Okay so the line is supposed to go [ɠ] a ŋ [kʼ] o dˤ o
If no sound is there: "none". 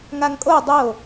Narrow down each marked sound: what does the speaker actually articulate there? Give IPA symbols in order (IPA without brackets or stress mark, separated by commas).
ŋ, kʼ